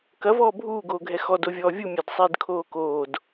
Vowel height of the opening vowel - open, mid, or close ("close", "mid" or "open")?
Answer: open